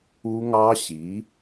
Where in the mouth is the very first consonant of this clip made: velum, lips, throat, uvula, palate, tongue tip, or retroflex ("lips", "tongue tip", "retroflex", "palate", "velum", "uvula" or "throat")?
velum